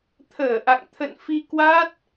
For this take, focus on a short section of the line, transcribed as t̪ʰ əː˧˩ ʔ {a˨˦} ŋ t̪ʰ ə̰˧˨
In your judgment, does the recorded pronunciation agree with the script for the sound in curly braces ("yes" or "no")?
no